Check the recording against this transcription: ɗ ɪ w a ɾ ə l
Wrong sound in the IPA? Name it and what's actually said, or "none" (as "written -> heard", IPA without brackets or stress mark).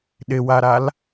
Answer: ə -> a